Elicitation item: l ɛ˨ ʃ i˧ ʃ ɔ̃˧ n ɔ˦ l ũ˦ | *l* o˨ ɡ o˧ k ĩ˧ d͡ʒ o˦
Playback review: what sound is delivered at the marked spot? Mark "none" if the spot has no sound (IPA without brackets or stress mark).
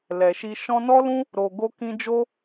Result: ɾ